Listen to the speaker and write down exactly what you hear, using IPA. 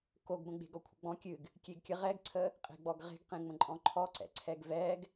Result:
k o ɡ b ə̃ ɡ͡b e̤ ɡ ɔ kʷʰ ə̰ ɡ͡b ɔ̃ kʲ ɨ ɡ | kʲ e ɡ kʲ ə ʁ ɛ ɡ ǀʰ ə | qʼ e̤ ɡ͡b ɔ ɡ ʁ e̤ ɡ q ẽ ŋ͡m ə̃ ǃʼ ɔ̃ ǃʰ ɔ ǀ ɛ̰ ǀʰ ɛ ɡ v ɛ ɡ

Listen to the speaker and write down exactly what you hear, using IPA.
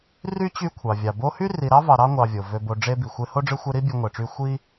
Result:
r y˥ t͡ɕ y˦ kʷʰ ɑ˩ vʲ ɑ˩ b o˦ h y˥ r i˨ ɾ ɑ˥ v ɑ˨ ɾ ɑ˥ ŋʷ ɑ˨ vʲ o˩ v ø˨ b o˨ ɖ͡ʐ e˦ b i˩ xʷ e˦ h o˥ ɖ͡ʐ ɯ˦ xʷ e˦ ɾ i˥ bʲ ø˦ ŋʷ e˩ ʈ͡ʂ y˥ xʷ i˥

